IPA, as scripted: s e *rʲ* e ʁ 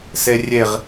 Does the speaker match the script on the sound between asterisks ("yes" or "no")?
yes